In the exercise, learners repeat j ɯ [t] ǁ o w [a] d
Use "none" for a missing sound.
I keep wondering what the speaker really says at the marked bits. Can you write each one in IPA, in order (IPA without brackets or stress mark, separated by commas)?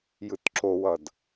t, ʌ